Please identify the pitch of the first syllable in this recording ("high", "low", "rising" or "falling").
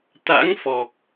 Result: rising